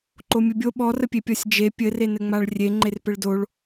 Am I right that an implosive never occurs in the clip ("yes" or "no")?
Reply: no